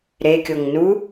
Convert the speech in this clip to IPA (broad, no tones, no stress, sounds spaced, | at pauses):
ɾ e kʲ o ŋ n u